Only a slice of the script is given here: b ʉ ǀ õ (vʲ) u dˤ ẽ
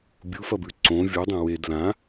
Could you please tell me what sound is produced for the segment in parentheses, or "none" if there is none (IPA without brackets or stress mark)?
vʲ